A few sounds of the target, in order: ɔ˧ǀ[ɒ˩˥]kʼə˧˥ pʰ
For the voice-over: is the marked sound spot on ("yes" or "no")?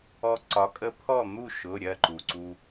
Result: yes